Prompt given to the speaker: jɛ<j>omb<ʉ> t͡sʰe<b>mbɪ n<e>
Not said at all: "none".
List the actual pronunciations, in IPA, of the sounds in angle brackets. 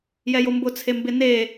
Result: j, ʊ, none, e

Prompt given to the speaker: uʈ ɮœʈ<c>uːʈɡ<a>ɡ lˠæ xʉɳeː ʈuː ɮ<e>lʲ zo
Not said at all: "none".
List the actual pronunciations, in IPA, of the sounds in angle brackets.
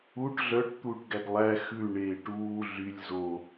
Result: t̪, æ, y

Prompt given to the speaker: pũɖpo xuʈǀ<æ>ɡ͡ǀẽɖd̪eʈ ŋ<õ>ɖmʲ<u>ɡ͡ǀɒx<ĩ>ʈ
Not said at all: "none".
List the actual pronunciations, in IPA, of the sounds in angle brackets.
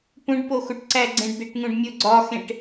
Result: æ, ũ, o, ẽ

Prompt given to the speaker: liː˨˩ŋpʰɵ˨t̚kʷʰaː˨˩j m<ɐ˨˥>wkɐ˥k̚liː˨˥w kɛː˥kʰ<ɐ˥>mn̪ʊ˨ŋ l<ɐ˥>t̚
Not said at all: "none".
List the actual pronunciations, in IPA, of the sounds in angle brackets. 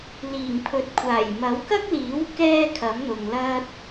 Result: ɐ˨˥, ɐ˨˥, ɐ˥

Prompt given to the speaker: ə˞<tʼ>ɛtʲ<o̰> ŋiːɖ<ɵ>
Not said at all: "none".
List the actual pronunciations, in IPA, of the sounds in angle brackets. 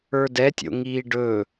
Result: d, o̰, ɵ

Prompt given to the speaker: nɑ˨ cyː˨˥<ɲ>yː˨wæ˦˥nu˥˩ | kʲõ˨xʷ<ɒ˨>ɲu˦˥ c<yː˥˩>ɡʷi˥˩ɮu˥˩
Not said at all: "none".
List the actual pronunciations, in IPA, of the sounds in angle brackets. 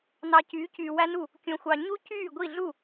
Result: c, ɑ˨, yː˥˩

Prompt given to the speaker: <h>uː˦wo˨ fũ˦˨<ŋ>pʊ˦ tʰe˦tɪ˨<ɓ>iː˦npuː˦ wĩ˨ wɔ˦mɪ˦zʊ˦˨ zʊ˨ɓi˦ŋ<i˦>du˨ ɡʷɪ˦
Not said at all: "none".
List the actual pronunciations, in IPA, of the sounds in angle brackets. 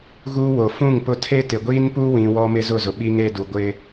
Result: ɣ, ŋ, ɡʷ, e˦

